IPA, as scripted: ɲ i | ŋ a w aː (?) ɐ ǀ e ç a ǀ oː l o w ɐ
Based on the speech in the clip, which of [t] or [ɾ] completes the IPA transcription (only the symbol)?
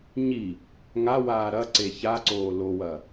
ɾ